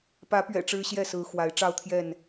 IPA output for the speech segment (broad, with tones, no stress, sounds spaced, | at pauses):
p ä˨˦ p ɥ ɛ̰˨˩ ʈ͡ʂ ɻ̩˦ ɕ j ɛ˥˨ s ɹ̩˨˦ x w a˨˦ ɪ̯ ʈ͡ʂ ɑ˥˨ ʊ̯ t̪ʰ j ɛ˥˨ n